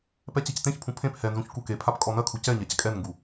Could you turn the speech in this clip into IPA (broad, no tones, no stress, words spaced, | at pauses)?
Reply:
pɛt͡ɕɛctẽçpʰũ pʰẽp hɛnzũç kukepʰap kʼɔnɐkʰu cɛɲac kʼɛnŋɡu